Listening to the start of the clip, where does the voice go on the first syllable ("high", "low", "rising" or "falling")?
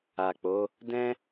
low